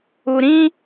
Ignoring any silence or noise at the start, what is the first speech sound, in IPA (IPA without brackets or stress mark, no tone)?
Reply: u